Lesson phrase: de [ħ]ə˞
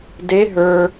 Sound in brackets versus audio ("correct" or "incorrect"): incorrect